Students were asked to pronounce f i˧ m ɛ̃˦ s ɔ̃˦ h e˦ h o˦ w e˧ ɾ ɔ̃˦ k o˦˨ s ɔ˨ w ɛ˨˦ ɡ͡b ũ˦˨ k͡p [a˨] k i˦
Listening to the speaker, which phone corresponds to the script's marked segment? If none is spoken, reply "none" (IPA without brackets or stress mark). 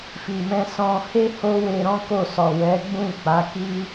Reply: a˨˦